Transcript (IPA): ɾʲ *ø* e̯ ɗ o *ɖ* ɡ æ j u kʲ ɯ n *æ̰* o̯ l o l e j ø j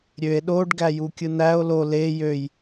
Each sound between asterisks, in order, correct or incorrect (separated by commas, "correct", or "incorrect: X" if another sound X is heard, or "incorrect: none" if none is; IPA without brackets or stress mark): correct, correct, incorrect: æ